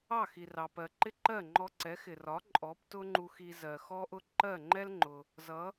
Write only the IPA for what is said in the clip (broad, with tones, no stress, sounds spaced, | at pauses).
ɑ˥˩ x i˩ r ɑ˩ p ɜ˩ ǃ ɪ˥˩ ǃ ɜ˥˩ ŋ͡ǃ ɔ˧ ǀ ɛ˩˥ x ɪ˩ r ɒ˩˥ ǃʼ ɔ˩˥ p t ʊ˥ ŋ͡ǃ u˧ x i˧ z ɜ˩ x ɔ˥ ʔ ʊ˥ ǃ ɜ˥˩ ŋ͡ǃ ɛ˥ l ŋ͡ǃ ʊ˩ | z ʌ˩˥